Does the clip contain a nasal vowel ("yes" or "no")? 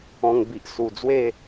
yes